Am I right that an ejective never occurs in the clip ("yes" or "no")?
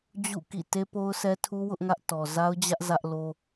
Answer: yes